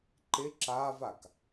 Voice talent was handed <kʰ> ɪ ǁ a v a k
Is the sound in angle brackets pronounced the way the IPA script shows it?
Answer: no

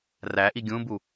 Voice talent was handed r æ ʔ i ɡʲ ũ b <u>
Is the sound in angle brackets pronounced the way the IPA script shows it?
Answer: yes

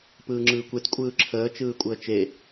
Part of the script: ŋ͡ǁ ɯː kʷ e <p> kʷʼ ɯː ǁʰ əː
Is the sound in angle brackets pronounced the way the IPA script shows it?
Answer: no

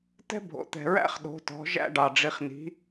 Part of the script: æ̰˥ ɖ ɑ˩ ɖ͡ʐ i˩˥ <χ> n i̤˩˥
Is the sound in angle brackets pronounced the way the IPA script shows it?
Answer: yes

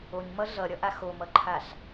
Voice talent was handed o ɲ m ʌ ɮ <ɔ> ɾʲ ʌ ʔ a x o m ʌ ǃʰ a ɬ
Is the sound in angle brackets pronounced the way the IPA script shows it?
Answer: no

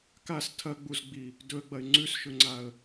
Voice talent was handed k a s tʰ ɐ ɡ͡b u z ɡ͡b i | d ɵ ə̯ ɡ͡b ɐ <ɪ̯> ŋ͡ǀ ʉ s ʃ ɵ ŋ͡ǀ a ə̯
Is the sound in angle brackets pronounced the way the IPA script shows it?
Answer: yes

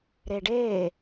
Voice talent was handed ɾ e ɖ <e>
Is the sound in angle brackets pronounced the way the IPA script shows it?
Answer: no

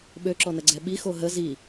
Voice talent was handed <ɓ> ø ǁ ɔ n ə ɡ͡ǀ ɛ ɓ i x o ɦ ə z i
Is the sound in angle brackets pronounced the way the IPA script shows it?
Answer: yes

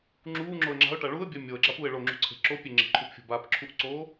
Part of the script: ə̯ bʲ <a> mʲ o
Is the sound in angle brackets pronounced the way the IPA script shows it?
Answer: yes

